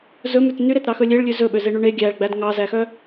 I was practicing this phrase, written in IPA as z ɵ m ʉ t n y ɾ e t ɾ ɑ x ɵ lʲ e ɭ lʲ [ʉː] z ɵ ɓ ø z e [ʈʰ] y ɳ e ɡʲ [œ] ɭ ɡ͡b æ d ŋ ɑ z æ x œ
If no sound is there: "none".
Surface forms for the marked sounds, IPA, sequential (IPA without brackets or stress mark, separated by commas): ʉ, ɳ, æ